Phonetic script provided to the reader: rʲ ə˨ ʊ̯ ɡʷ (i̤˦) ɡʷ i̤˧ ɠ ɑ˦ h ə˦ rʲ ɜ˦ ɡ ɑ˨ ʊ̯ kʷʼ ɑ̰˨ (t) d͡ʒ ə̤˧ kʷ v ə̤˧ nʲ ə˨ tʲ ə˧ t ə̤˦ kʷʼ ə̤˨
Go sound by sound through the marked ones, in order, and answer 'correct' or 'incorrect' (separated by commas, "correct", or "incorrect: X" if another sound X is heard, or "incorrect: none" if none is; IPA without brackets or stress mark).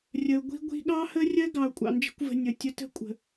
correct, incorrect: n